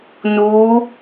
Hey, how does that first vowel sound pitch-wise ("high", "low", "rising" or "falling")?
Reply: rising